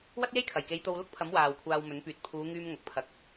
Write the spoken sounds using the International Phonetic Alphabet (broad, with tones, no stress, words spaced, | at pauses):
wɐ˥t̚je˥jkʰɐ˨˩jke˨˧j t̪o˧wlʊ˥k̚pʰɐ˨˥m waː˨wkʷʰaː˧wmɵ˨˥npyː˨˥t̚ pʰuː˨˧ŋyː˧m ŋɐ˨k̚pʰɐ˨˥k̚